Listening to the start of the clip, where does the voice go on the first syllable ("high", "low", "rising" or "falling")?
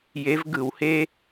rising